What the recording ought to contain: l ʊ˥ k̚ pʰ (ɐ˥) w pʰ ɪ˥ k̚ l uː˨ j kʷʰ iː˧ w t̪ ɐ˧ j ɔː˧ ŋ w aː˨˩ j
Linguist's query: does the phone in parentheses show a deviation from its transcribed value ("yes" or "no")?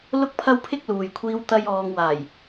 no